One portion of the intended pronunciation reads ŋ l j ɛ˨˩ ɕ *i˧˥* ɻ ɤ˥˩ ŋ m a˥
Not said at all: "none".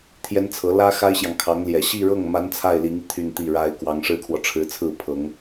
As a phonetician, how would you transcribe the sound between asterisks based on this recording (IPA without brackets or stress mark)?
i˥˧